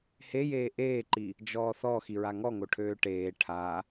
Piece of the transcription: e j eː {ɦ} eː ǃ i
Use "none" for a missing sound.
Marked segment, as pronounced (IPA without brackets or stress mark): ʔ